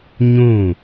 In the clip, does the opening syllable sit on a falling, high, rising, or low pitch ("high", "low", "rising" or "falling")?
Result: falling